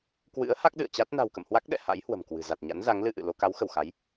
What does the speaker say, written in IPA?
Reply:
k w ɨ̰˧˥ ə̯ h a˦˥ k̚ ɗ ɨ̰˧˨ ə̯ t͡ɕ a˦˥ t̚ n a̤˨˩ w k ə̰˧˨ m h w a˦˥ k̚ ɗ ɛ̰˧˨ h a̰˧˥ j h w ə̤˨˩ m k w ɨ̤˨˩ z a˨˩ t̚ ɲ a̰˧˥ n z a˨˦ ŋ l ɨ˧ ʔ ɨ̰˧˨ l o˧ k a˨˦ w x ə˧˩ w x a˨˦ j

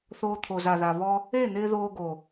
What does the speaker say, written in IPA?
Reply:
θ oː˧ t̪ʰ o˨ z a˨ ð a˨ β ɔ˧ | e˦˨ n̪ ɪː˧ ð oː˧ ɡ o˨

